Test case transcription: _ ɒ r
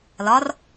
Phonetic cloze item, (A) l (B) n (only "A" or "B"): A